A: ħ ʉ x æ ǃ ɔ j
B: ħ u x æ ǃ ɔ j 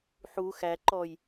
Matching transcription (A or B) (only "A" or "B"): B